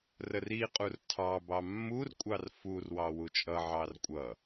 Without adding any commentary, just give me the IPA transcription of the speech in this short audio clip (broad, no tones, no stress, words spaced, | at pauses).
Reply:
rəriqʼur tʰɑbɑ mːurkʷʼɑr furwɑ wut͡ʃʼʌʕɑr kʷʼʌ